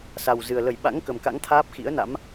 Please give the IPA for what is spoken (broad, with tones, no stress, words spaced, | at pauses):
sa˨˩wzɨ˨˩ə̯ lə˧˩jɓa̰˧˥ŋ kə˨˩mka̰˧˥ŋ t̪ʰaː˦˥p̚ xḭ˧˥ə̯na̰˧˥m